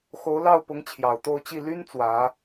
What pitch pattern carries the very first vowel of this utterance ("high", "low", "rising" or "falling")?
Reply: rising